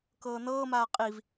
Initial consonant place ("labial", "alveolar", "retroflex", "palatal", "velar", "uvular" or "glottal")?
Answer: velar